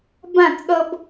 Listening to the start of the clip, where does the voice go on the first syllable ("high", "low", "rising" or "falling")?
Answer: falling